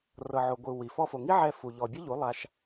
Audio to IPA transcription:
r ɤ˨ ʕ o˨ ɡʷ ɯ˨ w i˨ f ɔ˧ f o˨ ŋ i˦ ʕ ɛ˧ f u˨ ʎ ɔ˨ bʲ o˦ ʎ u˨˦ lˠ a˧ ʃ

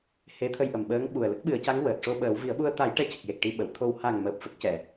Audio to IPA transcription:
h e˧˥ t̪ʰ ə˧ j ʔ ə˨˩ m ɓ əː˧˥ ŋ ɓ u˨˩ ə̯ l ə˦˥ k̚ ɓ ɨ˨˩˦ ə̯ c a˧˥ ŋ w əː˨˩ t̚ ʂ o˧ ɓ əː˨˩˦ w v i˨˩˦ ə̯ ɓ u˧ ə̯ t̪ a˨˩˦ j ʈ ɛ˧˥ c ə˨˩ k̚ j e˨˩ k̚ ʈ i˧ ɓ ə˨˩˨ w t̪ʰ o˧ w h a˨˩ ŋ m əː˨˩ p̚ f ə˦˥ k̚ c ɛ˨˩˨

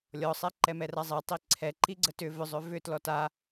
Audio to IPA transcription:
lʲ ɔ sˤ ɛ ǃ ɛ m ɛ r a zˤ e tˤ i ǀʰ ɛ ǃ i ɡ͡ǀ ə t ʏ v ʏ zˤ ʏ v ʏ t l ɔ t a

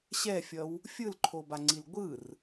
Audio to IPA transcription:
ɕ ɛ fʲ ʌ w | fʲ ɯ l ǃʰ o b a ŋ͡ǀ i l ɡʷ ɯ r

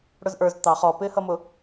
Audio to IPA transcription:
ɽ ʊ z ʔ ə˞ z t̪ ɑ χ ɔ p ɪː h ʌ m ʊ

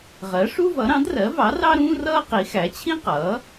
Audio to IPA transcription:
ʁ ɜ˩˥ ʂ u˥ v ʌ˩˥ ɾ ɑ̃˩˥ d r ɜ˩˥ v ɑ˩˥ r ɑ˥ ɾ ũː˥ r ʌː˥ q i˩˥ x æ˩˥ t͡ɕʰ ĩ˥ q ʌː˩˥

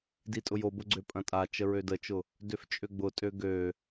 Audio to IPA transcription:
d i tʼ ʊ j o b ʊ ɡ͡ǀ ø pʼ ɐ̃ tʼ a t͡ʃ ə ɹ ø d ə t͡ʃ ʊ | d ø f t͡ʃʼ ø ɡ͡b ʊ tʼ ø ɡ ø

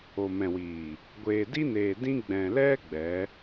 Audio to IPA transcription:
o˨ m ɛ̃˨ w iː˨ | ɡʷ eː˨ d i˦ n eː˨ d ĩ˦ ɡ͡b ɛ̃˨ l ɛ˦ ɡ͡b ɛ˨˦

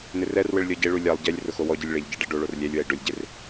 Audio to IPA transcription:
n ɪ r ɛ r w ɪ ɭ lʲ ɔ ɟ e ɭ u lʲ a lˠ ɟ ɛ lʲ r ʊ x o w ɔ ɟ i lʲ ɭ e ʎ ɟ e ɖ ɛ ɖ o ɭ o r lʲ ɛ lʲ w ɛ i̯ ɖ ʊ lʲ ɟ e r

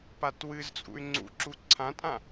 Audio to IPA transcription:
p a t w ɨ z t͡sʼ ṵ y̯ ŋ͡ǀ ṵ ǁ u ǀʰ ã tʼ ã

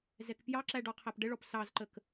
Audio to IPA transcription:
z ɛ k p j ɑ ǁ æ ɖ ɔ qʰ æ p ɖ ə ɭ ɔ p s ɑ z ǃ ə k

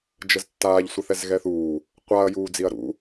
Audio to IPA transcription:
d͡ʒ ə z tː aː ʎ sʷ ə θ ɛ z ɣ ɛ θ uː | qʷ a ɐ̯ j uː d͡z i ɐ̯ ɾ ṵ

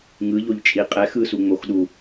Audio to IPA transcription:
ŋ ɯ ʎ o ʎ t͡ʃʼ i qʼ ɛ x ɯ s u ŋ͡m o x ɗ u

